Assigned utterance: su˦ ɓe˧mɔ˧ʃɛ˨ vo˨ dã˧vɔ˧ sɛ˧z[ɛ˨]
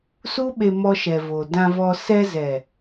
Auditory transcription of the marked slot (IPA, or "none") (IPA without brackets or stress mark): ɛ˨